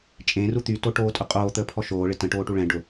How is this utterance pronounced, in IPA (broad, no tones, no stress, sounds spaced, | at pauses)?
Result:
t͡ʃʼ ẽ r u t̪ y t o ʈ oː tʼ ʊ qʼ oː t̪ əː pʰ ɔ ʃ oː ɭ ɪ t ə̃ ʈ oː ʈ u ɭ ɛ̃ ɖ ʊ